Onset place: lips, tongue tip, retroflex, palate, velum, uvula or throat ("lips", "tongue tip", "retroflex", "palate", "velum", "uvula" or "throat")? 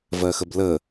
lips